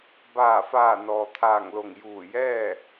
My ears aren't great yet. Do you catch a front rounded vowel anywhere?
no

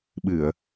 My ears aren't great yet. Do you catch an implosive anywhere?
yes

